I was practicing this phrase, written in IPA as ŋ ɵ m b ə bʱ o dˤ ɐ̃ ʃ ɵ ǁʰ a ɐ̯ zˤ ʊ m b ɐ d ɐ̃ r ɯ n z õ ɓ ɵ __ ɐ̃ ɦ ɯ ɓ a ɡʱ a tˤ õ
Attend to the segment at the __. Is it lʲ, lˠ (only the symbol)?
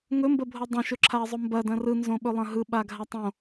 lˠ